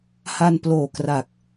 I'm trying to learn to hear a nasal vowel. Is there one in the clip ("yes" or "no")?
no